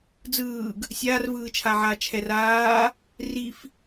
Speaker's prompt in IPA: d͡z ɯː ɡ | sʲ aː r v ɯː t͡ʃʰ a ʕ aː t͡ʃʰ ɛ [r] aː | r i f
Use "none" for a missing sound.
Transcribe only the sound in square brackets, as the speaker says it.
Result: r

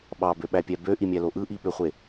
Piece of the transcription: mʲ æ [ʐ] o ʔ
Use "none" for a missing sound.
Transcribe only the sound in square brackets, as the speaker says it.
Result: l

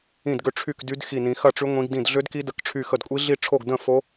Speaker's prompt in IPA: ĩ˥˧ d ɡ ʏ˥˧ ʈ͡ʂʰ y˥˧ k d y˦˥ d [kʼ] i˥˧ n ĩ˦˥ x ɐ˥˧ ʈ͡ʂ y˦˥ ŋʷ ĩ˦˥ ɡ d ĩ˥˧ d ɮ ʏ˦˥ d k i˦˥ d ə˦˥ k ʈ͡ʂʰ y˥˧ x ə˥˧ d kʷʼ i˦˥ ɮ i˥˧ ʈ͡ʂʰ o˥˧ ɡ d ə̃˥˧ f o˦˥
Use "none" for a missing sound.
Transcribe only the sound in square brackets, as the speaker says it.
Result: x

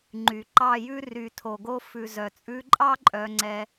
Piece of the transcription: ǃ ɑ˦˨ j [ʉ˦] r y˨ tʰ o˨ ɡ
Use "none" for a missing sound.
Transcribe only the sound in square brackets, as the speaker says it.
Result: ʉ˦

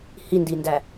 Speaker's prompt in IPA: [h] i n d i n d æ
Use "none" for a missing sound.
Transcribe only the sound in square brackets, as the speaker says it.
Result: h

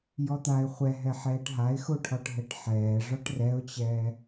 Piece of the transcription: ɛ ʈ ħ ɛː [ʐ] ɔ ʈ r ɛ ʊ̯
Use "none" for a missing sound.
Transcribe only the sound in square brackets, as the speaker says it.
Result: ʐ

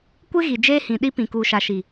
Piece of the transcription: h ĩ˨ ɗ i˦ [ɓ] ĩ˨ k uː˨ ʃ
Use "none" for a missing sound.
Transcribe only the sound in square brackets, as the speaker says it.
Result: p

